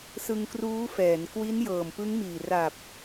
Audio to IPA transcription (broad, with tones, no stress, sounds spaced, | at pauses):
s ɯ˧ ŋ k r uː˦˥ f ɛː˩˦ n k w i˦˥ n j ɤː˨˩ m p ɯ˦˥ ŋ m iː˨˩ r a˨˩ p̚